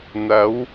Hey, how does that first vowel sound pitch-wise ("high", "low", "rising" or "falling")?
rising